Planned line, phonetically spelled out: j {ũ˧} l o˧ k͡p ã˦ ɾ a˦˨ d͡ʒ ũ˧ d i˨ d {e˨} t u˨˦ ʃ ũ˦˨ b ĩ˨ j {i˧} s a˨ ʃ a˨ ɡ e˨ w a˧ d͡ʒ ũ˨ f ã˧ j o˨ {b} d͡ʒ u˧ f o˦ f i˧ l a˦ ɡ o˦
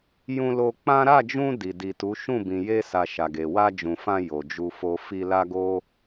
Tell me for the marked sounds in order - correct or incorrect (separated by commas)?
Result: correct, incorrect, incorrect, incorrect